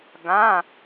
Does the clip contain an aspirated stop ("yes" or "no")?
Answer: no